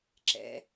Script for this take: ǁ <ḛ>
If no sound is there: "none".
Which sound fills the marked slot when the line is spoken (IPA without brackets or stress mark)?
ɛ̰